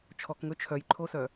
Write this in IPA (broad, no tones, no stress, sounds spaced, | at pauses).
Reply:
t͡ʃʰ ɔ k ŋ ɵ t͡ʃʰ œ j ǃʰ o s œ